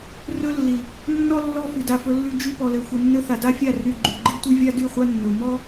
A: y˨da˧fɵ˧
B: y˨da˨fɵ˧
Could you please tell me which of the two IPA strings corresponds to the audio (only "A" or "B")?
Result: B